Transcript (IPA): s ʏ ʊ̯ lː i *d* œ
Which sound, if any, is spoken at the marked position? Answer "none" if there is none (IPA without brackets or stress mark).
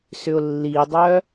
dˤ